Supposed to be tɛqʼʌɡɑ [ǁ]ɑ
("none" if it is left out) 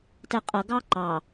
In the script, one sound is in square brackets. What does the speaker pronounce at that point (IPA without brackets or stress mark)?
ǃ